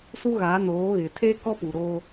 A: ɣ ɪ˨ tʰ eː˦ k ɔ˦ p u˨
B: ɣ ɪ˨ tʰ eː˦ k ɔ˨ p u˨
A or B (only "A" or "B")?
A